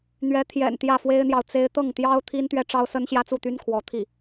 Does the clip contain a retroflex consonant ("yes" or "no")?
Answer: yes